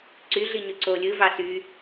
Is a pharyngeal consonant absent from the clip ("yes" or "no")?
yes